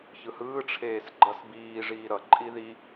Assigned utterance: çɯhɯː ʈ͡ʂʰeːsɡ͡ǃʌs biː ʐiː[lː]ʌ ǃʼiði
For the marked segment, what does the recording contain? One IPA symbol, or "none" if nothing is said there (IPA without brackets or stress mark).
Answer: ɾ